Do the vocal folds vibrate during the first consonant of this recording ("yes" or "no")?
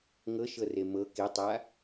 yes